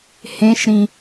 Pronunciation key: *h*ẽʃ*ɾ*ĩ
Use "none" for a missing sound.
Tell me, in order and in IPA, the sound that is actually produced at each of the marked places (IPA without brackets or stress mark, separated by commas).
h, ɾ